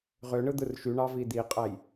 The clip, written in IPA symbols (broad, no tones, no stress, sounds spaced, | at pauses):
ʁ ø ɳ ɯ d̪ ɯ r ʃ y ɳ ɑ v i d̪ i qʼ æ j